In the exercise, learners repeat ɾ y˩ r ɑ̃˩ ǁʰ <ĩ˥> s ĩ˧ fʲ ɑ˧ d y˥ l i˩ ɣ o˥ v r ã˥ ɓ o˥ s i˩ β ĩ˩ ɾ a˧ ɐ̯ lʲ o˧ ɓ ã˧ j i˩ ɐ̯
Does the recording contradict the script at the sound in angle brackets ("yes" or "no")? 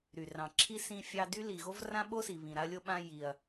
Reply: yes